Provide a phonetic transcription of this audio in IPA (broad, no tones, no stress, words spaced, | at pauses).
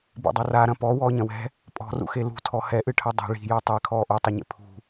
bḛdˤaraɾɐ̃ pɔ wɔːɲɐ̃wɛ̤ | pʼɔ̤rṵxe lṳtʰɔ hɛʔɨʈʰɐ dˤɛ̤ ɭi̤ju tˤɛ kʰɔːʔotˤɐɲḛ pʰṳ